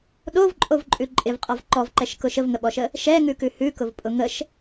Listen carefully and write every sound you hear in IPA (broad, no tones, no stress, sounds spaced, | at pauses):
ɗ o v ǃʼ o v ǃʼ ʉ ǃʼ ɪ v qʼ ɔ v ǃ ɔ v ǃ ɛ ʃ k ʊ ʃ ə v ŋ ə ɓ ɔ ʃ ə | ʃ ɛ ŋ ʉ k ʉ h ʉ k ʊ v pʼ ʊ ŋ ə ʃ